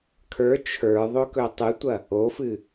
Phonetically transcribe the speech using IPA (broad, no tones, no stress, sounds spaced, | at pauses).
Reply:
kʰ ə˞ t͡ʃʰ ə˞ ðˤ ɵ k ɵ tˤ ɨ tʷ ɐ | o f ɨ